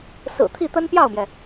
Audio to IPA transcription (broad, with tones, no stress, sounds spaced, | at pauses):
s ɹ̩˨˩ t̪ʰ i˥˩ t̪ ə˥ n p j ɑ˥˩ ʊ̯ m j ɛ˩